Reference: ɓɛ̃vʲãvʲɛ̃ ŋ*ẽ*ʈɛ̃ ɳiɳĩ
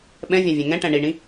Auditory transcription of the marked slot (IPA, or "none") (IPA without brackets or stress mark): ɛ̃